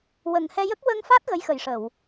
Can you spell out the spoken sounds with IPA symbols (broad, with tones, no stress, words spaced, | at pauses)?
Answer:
wə˨˩ŋhɛ˧jə˦˥k̚ wə˧ŋfa˦˥t̚ ɣə˧˥jxə˨˩jʂə˨˩˨w